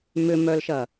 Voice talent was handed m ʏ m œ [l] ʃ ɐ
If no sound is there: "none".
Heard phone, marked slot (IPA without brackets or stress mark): l